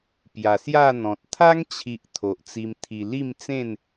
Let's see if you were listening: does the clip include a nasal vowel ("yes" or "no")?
yes